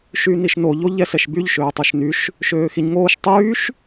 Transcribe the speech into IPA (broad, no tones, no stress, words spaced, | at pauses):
ʃyniʃno ʎoʎɛsɛʃbyʎ ʃøːtˤuʃnyʃ | ʃøːxiɲŋoːʃ tˤyːʃ